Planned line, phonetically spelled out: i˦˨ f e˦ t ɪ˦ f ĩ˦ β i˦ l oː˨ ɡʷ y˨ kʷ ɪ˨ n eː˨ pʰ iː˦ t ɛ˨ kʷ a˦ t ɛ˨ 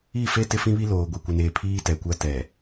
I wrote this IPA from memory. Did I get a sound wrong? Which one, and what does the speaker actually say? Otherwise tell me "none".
y˨ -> i˨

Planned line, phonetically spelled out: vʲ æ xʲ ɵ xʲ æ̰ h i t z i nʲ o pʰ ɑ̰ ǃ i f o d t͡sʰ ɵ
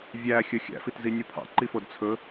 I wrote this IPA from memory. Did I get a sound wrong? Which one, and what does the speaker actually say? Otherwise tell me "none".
h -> f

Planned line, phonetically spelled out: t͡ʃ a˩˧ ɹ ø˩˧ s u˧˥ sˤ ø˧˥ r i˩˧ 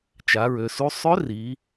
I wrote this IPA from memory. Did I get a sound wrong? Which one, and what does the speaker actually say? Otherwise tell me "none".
none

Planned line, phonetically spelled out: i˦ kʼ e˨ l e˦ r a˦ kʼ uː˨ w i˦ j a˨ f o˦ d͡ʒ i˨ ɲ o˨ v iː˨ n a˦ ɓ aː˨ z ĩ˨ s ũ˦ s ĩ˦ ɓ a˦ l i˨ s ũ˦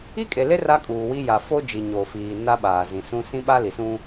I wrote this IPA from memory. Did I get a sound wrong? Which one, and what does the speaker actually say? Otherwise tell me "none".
v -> f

